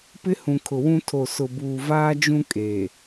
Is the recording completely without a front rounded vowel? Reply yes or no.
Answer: yes